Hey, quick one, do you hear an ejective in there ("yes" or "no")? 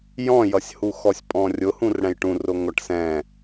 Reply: yes